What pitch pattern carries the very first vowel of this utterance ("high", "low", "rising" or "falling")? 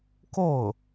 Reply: falling